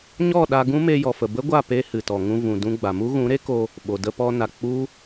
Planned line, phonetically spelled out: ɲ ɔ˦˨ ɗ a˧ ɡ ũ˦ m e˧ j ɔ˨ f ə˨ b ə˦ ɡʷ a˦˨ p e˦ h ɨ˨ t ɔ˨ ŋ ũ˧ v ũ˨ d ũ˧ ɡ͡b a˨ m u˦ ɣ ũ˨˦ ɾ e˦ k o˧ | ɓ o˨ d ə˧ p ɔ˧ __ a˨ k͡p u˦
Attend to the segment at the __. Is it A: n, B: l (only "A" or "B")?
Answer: A